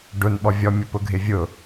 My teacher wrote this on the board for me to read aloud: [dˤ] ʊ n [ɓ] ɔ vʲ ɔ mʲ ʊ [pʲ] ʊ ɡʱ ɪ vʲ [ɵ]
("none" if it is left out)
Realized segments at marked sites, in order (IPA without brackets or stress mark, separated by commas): ɖ, ɓ, p, ʊ